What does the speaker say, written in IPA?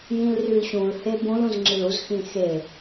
j ĩ l r y l ɕ ũ l h e b ũ l ũ z ŋ͡ǁ i l u z x ĩ x e

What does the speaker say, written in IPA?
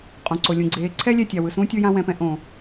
qʼ õ˨ ǀ o˨ lʲ ũ˨ ɡ͡ǀ eː˨˦ ǀʰ ɛ˦ lʲ ɛ˦˨ tʲ a˨ w ɯ˨ s ũː˦ tʲ ɯ˧ j ã˧ w ɛ̃˨ p ɛ̃˧ ʔ õ˨

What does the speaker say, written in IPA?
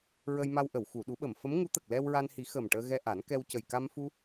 ɹ ə˧ j m a˧ w ʔ ə˨˩˨ w x u˨˩˨ ɗ u˨˩˦ ɓ ə˨˩˨ m f ə˧˥ m ŋ u˧˥ t̪ ə˨˩ k̚ l ɛ˧ w ɹ a˧ n h i˨˩˦ x ə˨˩ m ʈ əː˧ ɣ ɛ˧ ʔ a˨˩˦ n k ɛ˧ w c ə˨˩ j k a˧ m f u˧

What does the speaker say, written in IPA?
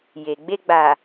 j e˨ ɡ͡b e˧ ɡ͡b a˨

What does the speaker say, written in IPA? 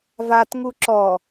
v a t ŋ u ǁ ɔ

